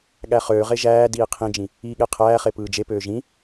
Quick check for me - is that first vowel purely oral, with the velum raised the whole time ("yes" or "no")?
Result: yes